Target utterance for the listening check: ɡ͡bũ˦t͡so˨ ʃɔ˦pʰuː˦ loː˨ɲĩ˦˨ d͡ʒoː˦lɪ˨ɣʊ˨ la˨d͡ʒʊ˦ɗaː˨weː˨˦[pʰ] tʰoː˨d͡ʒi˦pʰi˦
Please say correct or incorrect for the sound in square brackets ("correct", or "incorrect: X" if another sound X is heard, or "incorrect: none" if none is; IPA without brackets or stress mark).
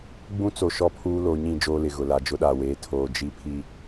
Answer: incorrect: none